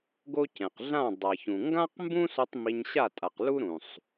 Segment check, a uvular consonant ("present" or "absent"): present